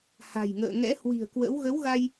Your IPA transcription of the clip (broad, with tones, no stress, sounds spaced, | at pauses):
h a̤˨˩ j ŋ ə̰ː˧˨ ŋ ɛ̰˧˥ h w i̤˨˩ ə̯ k w ə̰˧˥ w ɣ ə˨˦ w ɣ a˧ j